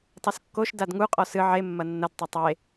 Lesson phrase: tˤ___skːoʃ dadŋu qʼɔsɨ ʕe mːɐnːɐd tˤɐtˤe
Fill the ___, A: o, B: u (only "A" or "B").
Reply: A